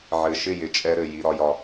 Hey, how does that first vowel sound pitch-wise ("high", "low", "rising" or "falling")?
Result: low